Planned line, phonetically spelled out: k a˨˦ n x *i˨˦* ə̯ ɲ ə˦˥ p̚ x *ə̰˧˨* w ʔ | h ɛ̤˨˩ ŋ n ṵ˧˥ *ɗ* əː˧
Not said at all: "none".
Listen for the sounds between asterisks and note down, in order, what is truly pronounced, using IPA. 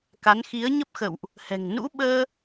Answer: i˨˦, ə̰˧˨, ɓ

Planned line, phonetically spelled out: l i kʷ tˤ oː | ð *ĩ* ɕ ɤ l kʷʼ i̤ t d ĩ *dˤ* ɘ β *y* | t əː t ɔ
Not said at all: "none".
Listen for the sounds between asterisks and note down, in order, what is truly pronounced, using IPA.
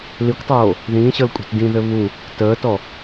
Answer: ĩː, ð, u

